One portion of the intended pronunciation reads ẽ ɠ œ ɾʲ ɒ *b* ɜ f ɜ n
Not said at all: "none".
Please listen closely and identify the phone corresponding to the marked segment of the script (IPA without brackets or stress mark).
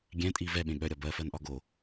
b